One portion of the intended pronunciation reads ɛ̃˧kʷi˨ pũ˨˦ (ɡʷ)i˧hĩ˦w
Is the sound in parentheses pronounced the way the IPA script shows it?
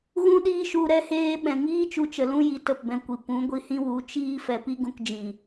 yes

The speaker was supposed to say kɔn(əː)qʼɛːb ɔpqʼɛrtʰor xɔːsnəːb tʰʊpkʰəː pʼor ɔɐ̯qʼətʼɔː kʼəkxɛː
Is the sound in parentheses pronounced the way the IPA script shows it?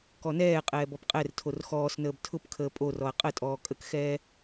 no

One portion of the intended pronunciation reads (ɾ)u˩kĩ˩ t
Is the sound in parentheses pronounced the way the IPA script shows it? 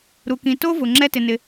yes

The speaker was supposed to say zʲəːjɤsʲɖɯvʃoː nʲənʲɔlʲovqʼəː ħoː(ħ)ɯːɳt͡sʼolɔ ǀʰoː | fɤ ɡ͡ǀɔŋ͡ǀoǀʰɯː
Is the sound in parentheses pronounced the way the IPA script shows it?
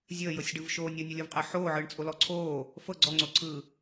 no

